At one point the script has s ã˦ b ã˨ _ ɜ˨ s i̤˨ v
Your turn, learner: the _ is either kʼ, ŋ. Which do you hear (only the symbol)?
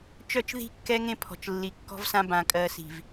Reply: kʼ